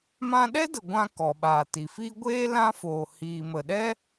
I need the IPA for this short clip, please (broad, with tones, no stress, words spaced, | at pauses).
mã˧ɗɛ˦də˨ ɡʷã˧ kɔ˨ɓaː˨ti˨fi˦ ɡʷeː˦ lã˦foː˨ hiː˨mə˨ɗɛ˦